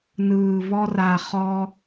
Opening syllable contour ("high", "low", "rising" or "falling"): low